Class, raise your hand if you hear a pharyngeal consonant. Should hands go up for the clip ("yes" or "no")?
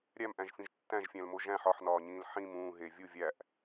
yes